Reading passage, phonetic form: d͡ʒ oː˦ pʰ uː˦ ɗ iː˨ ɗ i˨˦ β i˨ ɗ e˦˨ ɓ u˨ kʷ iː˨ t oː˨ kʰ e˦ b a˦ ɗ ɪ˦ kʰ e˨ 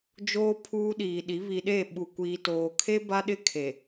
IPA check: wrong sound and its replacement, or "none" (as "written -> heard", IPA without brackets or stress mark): none